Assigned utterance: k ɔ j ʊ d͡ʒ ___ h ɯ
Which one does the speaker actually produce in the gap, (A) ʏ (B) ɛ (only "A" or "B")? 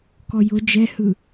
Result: B